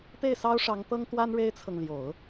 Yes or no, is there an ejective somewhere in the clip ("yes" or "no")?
no